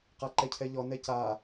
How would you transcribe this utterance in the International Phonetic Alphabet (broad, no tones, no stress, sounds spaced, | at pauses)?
q a ǃ ɛ cʰ ɛ ʎ ɔ n ɛ c a